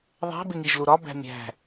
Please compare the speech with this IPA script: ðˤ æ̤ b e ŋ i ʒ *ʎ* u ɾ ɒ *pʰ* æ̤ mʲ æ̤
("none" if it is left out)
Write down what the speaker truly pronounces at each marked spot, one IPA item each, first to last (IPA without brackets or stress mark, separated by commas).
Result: l, b